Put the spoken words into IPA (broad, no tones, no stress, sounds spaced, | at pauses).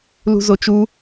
l ṳ z o t͡ʃ u